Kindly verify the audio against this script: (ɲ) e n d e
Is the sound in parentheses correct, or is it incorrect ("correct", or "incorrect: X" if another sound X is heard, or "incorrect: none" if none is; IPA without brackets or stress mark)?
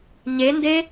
correct